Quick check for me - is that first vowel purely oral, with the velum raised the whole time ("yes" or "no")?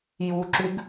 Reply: yes